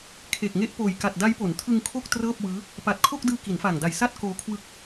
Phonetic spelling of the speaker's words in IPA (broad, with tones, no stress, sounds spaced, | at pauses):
kʰ e˨˩ k̚ ŋ e˦˥ ʔ p oː˨˩ j k a˨˩ t̚ d a˦˥ j p o˩˦ n tʰ ɯ˧ ŋ kʰ o˥˩ k̚ t r ɤː˥˩ p̚ w ɯː˦˥ | p a˨˩ t̚ kʰ o˥˩ k̚ d ɯː˧ k i˩˦ n f aː˨˩ ŋ d a˨˩ j s a˥˩ t̚ k oː˧ kʰ w ɯ˦˥ k̚